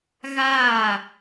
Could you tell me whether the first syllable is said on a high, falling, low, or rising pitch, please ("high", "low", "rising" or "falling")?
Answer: falling